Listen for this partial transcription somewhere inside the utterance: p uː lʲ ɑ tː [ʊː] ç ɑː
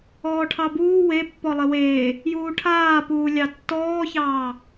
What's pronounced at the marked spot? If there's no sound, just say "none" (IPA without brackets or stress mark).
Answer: ɔː